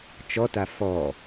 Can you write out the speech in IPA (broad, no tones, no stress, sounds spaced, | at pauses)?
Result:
t͡ʃ ɔ t a f ɔ